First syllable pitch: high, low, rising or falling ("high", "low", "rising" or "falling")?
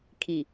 low